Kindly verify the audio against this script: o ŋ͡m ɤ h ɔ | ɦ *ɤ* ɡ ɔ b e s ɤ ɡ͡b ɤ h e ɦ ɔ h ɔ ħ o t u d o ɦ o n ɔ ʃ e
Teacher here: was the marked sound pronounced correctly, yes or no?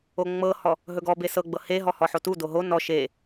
no